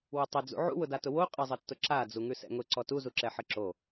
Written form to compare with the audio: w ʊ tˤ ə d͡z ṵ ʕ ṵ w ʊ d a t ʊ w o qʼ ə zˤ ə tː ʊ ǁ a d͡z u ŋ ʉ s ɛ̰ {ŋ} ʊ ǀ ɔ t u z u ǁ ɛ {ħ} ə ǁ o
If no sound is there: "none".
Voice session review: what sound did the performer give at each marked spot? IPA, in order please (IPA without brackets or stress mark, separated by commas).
ŋ, ħ